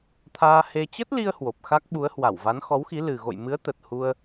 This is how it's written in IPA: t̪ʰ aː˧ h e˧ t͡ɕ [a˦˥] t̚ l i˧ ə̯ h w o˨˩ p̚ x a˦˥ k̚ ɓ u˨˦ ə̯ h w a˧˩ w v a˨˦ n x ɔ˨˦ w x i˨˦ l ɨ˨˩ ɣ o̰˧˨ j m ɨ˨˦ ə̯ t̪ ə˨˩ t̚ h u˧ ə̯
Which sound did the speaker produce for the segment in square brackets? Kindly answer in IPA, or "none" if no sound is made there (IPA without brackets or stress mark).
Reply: ə˦˥